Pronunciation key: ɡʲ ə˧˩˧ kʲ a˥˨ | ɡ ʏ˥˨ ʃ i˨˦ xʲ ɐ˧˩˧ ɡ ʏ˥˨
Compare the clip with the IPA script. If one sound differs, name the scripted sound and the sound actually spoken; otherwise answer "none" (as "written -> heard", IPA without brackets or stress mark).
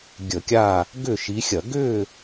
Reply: none